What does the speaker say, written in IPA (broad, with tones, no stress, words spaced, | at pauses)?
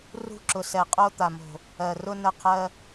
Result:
rṳ˧ǁʊ˨sɛ˨qʼo˧ t̪a˨mo̤˨ | ɜ˨rʊ˧ nə˧qʰɜ˧